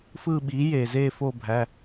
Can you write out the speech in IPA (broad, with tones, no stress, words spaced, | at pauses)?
fɯː˦˨ɓiː˩˥jeː˩zeː˦˨ fo˦˨bʱæ˩˧˩